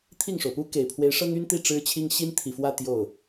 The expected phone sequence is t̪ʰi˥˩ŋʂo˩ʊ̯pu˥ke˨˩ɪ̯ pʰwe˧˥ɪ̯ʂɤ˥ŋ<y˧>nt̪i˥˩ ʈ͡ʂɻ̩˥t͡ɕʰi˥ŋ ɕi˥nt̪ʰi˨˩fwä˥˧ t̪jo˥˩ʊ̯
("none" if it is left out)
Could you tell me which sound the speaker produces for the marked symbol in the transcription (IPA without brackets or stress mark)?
y˥